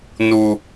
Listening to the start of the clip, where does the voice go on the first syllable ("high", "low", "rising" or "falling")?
high